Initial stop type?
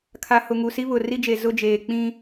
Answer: aspirated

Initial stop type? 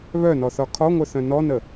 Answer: aspirated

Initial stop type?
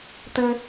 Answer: plain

